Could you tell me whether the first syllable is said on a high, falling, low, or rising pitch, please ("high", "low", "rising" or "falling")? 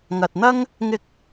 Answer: low